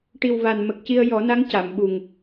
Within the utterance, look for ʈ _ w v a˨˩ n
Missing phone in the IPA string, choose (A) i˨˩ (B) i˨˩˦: A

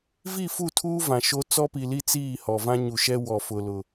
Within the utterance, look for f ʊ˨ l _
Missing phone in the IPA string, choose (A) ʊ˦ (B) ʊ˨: B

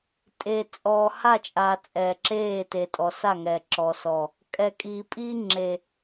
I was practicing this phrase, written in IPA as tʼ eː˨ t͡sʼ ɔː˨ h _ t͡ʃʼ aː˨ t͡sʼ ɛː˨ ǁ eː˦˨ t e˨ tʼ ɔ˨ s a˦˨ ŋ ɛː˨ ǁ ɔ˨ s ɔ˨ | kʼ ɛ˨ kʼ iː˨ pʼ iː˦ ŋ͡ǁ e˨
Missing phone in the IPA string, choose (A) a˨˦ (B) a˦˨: B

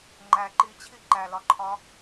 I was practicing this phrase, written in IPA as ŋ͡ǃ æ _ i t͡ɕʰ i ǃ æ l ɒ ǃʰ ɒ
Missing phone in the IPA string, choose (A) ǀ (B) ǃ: B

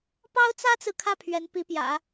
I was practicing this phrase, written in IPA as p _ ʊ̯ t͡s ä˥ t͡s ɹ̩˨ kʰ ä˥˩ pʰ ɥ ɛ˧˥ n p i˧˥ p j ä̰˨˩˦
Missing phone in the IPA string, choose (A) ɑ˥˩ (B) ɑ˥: B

